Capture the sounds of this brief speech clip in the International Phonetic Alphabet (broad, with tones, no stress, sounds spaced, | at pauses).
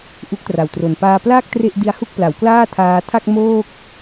ʔ u˦˥ k̚ t r a˨˩ w t r o˨˩ n p aː˧ p l aː˥˩ k̚ t r e˥˩ ʔ d i˦˥ a̯ h u˥˩ k̚ p l a˩˦ w k l aː˥˩ tʰ aː˧ tʰ a˥˩ k̚ m oː˥˩ k̚